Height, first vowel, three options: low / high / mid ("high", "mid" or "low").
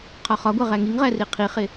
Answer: low